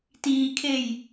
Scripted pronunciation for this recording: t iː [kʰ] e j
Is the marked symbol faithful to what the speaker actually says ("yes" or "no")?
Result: yes